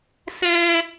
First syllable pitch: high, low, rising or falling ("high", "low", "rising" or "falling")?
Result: high